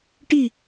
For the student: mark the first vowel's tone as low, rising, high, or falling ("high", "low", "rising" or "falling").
falling